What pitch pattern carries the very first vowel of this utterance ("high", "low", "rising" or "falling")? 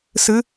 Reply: rising